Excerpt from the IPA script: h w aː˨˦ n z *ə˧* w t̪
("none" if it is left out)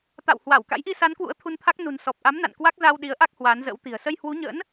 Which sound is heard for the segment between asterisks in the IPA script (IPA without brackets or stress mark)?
ə̰˧˥